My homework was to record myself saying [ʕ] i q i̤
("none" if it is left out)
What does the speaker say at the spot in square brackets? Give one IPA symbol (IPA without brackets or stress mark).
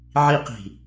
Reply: ʕ